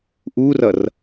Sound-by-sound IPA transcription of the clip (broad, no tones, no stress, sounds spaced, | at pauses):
ʔ uː r ʌ r